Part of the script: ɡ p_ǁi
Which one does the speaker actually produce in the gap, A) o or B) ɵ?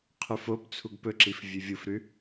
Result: B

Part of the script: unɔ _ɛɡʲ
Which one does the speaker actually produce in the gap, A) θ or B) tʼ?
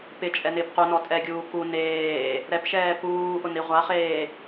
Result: B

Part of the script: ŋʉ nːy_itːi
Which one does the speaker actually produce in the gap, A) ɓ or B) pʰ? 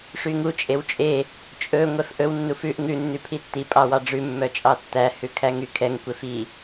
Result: B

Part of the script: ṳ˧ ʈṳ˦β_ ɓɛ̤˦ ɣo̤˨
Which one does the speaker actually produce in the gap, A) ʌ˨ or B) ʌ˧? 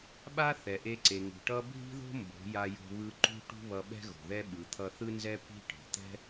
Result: B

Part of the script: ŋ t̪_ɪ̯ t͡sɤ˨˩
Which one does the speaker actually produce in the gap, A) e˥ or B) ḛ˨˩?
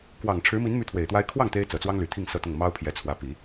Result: A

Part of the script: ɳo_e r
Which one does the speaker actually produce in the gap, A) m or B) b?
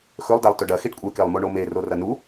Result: A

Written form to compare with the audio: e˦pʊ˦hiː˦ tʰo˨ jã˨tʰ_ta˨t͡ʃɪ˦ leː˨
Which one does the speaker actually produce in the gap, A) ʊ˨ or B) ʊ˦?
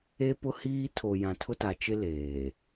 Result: B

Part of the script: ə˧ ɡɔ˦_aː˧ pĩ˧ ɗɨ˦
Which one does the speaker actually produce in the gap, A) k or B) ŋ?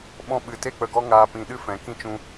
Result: B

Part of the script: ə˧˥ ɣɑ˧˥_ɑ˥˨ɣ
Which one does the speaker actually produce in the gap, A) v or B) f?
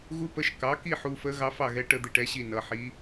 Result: B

